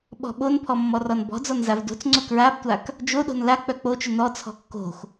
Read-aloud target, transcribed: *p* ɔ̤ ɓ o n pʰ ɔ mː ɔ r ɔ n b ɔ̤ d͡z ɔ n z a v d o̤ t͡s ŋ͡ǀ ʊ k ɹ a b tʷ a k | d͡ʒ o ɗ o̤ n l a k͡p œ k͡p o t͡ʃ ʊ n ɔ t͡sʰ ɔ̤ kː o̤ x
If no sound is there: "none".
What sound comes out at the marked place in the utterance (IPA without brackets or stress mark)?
ɓ